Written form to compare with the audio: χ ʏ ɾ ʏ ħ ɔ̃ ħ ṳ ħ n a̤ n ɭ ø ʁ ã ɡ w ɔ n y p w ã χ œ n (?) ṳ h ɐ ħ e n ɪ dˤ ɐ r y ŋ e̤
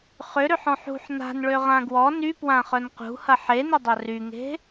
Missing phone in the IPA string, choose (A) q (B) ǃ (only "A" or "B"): A